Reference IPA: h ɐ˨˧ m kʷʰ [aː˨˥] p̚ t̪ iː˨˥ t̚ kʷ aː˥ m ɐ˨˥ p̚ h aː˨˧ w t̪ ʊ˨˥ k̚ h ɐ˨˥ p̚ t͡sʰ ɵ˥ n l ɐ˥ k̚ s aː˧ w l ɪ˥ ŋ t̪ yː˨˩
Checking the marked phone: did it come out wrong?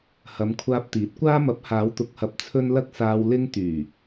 yes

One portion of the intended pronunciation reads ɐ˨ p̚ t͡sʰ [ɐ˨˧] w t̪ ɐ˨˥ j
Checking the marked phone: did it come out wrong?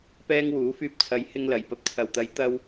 yes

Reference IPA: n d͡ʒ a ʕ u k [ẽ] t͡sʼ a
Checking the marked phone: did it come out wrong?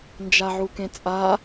no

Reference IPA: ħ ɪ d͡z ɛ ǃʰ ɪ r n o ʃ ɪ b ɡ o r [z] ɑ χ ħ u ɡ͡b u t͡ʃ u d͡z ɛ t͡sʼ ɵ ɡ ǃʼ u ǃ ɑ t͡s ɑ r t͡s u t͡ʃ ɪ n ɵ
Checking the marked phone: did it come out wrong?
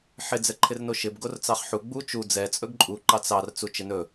yes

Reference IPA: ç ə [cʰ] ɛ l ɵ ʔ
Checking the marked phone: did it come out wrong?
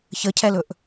no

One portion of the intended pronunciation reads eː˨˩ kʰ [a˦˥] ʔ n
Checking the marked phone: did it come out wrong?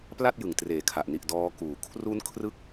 yes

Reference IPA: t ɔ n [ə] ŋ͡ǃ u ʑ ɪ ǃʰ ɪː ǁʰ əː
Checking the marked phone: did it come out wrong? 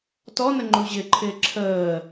no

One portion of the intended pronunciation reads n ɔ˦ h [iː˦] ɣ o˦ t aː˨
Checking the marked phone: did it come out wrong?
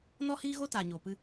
no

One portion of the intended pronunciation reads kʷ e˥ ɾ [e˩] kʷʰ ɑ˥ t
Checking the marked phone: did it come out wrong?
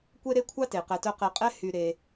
yes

